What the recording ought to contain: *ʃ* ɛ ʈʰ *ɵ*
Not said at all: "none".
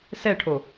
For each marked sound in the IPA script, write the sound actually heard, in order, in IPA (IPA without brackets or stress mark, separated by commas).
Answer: s, o